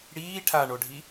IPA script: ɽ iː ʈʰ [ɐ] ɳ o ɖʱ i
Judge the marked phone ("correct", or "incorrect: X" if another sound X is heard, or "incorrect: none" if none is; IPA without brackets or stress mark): incorrect: a